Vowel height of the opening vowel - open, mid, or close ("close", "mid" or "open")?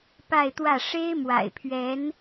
open